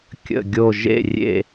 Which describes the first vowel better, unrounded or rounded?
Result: unrounded